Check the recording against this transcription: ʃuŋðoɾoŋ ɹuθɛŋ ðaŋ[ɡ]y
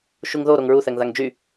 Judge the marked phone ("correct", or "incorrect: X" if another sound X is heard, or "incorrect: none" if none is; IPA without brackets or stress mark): incorrect: d͡ʒ